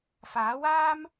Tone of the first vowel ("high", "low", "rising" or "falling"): rising